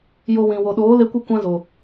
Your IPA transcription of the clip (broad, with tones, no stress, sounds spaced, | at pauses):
j o˧ w ĩ˨ w o˨ ɗ oː˨˦ l e˧ kʷ ɨ˦ kʷ ã˦ z o˨